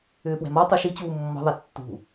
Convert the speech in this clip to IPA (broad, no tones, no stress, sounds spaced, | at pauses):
ʏː p w ɛ̤ m ɔ tˤ u ʃ i t͡ɕ uː mː ɔ̤ ðˤ ɛ tː ṳ